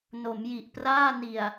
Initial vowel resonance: oral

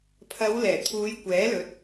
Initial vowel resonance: oral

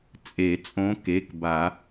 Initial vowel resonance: oral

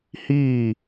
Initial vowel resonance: oral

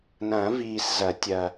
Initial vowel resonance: nasal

